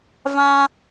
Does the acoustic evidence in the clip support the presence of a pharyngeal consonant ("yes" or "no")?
no